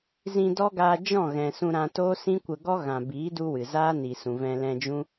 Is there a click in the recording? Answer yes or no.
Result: no